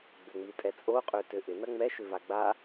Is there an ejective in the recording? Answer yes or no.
yes